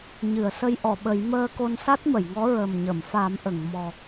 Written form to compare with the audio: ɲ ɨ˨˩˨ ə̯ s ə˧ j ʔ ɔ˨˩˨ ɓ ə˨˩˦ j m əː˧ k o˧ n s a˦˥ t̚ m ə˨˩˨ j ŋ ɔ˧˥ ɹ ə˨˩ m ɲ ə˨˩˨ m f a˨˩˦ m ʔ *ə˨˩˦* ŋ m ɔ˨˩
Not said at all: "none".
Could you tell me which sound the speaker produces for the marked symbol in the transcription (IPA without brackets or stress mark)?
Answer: ə˨˩˨